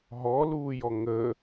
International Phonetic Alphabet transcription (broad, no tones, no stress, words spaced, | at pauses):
ɦɔluːjɔ ŋə